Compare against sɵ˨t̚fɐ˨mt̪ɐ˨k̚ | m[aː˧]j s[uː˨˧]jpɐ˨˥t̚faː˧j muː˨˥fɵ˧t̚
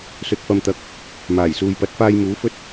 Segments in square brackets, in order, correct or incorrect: incorrect: aː˨˩, incorrect: uː˨

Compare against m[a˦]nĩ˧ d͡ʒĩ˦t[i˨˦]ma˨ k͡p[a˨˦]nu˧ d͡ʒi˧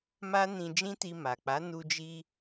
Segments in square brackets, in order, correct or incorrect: correct, incorrect: i˧, correct

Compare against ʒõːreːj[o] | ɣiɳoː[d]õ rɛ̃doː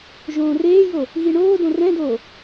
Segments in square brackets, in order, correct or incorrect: correct, correct

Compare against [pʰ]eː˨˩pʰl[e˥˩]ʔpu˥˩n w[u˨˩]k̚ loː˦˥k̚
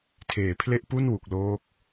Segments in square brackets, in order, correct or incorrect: incorrect: tʰ, correct, correct

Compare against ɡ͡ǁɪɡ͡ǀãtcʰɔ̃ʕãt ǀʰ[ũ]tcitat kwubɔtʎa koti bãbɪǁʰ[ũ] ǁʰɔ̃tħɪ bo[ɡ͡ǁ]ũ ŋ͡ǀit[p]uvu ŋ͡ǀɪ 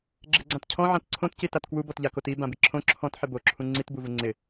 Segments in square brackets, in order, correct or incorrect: incorrect: õ, incorrect: õ, incorrect: ǁʰ, incorrect: b

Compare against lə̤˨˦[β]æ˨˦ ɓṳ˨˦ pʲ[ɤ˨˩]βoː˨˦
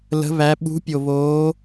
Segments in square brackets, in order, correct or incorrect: correct, incorrect: o˨˩

